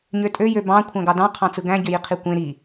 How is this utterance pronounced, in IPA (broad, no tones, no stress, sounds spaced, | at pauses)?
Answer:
ɲ ø tʼ ø j ø b ɑ̃ kʷʰ æ̃ ɡ ɑ d ɑ̃ qʰ ɑ̃ t͡s ɯ ɡ æ̃ ɟ ø j i qʰ i kʷ ẽ ɾ i